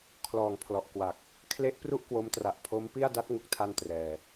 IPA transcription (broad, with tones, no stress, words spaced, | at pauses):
kʰlɔː˨˩ŋpʰlɔ˨˩ʔkwa˨˩k̚ | kʰle˦˥ʔ pru˥˩ʔkwo˦˥mtra˨˩ʔ pʰo˦˥mpi˥˩a̯ da˦˥t̚ŋu˨˩k̚tʰa˧n trɛː˧